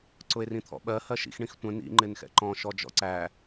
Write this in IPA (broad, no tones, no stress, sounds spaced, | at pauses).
ǀ ʊ e̯ r ĩ t̪ʰ ɔ̰ ɓ ɜ h ɜ ʃ ḭ x ɳ ĩ x tʷ ə̃ n ḭ ŋ͡ǃ ɪ n x ɛ̰ ǃ ɔ̃ ʃ ɔ d͡ʒ ɔ̰ ǀ æ